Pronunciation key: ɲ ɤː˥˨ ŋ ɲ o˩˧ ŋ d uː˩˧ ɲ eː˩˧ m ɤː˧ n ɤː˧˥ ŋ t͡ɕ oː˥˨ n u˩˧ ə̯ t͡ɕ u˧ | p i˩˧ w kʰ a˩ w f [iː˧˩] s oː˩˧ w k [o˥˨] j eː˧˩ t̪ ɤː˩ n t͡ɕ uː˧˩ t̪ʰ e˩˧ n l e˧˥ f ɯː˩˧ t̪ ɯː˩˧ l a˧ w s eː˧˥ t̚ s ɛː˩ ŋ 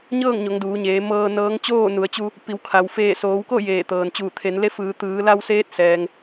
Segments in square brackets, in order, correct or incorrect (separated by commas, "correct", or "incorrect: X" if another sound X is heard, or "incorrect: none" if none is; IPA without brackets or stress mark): incorrect: eː˧˩, correct